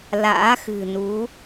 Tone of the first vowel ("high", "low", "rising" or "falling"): rising